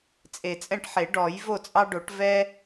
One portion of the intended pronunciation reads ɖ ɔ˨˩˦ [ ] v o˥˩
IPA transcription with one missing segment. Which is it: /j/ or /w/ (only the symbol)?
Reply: j